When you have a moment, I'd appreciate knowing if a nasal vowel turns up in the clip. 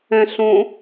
yes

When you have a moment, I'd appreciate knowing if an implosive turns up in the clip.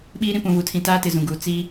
yes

